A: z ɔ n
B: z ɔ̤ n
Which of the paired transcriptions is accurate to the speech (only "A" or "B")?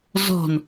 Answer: B